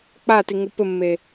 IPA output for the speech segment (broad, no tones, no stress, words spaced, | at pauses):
k͡patiŋu pɘmːe